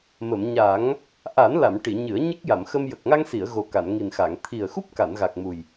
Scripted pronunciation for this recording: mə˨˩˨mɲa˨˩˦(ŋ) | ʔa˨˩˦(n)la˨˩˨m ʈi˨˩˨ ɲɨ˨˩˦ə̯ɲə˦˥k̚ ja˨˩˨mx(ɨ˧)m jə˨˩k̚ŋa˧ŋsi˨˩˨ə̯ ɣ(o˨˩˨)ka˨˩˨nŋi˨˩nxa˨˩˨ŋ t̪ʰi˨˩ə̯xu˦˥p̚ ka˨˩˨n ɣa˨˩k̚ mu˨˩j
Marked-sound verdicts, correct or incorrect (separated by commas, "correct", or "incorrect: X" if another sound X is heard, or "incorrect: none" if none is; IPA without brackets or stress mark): correct, correct, incorrect: ə˧, incorrect: o˨˩